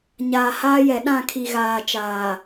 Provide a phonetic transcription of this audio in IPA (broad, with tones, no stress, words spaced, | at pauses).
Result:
ɲaː˨haː˦jɛ˨ ɗã˦˨kʰi˨ɣaː˨t͡ʃaː˨